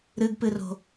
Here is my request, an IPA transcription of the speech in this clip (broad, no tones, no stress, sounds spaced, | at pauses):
ɾ ɨ ɡ p ɨ r o̤